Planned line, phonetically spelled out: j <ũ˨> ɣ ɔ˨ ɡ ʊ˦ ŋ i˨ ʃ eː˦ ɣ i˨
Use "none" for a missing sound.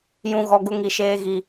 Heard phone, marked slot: ũ˨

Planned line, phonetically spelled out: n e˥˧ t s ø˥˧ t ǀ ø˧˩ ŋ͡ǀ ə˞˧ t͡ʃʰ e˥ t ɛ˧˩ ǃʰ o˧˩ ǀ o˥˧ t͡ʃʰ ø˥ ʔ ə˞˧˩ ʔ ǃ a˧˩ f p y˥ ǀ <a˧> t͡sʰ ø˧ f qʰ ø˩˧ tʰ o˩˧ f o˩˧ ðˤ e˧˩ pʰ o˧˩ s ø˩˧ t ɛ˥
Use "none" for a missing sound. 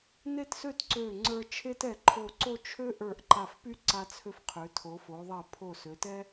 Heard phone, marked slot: a˧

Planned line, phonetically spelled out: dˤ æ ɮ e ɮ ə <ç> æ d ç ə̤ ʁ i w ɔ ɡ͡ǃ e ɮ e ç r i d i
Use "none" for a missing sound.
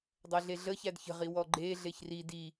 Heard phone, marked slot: ç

